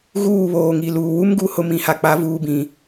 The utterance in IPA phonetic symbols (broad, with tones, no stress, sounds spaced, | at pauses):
ɣ uː˦˨ β oː˨ ŋ i˨ l uː˨ w u˦ m ɡ u˨ h ʊ˦ m ĩ˨ h a˨ k͡p a˨˦ v uː˨ b ĩ˨